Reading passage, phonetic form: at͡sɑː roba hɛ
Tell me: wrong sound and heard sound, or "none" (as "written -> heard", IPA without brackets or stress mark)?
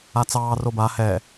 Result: none